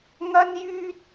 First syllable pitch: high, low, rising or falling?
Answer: high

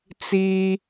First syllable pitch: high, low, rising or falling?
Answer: high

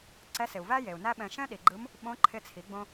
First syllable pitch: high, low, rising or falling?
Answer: rising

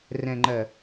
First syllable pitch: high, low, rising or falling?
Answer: low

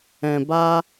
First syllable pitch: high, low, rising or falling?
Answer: low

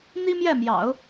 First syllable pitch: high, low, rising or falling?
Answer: high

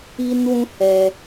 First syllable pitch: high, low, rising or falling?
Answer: high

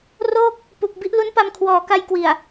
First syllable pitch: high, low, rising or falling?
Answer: falling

